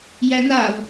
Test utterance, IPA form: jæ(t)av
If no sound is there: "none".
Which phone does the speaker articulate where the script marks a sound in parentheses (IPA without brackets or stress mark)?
n